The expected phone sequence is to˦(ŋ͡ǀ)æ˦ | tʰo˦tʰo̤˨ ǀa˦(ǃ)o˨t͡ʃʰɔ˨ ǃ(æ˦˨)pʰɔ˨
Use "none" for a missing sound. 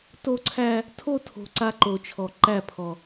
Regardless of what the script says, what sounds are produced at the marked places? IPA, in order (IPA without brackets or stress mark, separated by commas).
ǀʰ, ǃ, æ˦˨